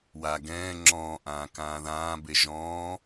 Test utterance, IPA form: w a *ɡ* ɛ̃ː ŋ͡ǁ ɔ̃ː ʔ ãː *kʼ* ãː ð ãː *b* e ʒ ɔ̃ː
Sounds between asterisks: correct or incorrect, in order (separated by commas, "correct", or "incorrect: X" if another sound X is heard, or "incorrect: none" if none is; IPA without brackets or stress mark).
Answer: correct, incorrect: k, correct